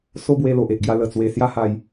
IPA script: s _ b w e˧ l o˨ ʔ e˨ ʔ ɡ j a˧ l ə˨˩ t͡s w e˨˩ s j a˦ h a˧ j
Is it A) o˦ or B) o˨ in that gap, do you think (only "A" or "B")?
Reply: A